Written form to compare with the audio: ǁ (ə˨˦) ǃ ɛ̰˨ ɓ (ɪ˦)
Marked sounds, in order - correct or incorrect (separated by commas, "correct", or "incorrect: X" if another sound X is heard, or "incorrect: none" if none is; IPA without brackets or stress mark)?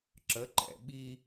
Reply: correct, incorrect: i˦